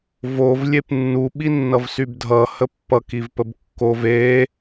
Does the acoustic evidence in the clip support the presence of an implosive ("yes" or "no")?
yes